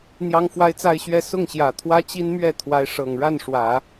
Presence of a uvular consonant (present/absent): absent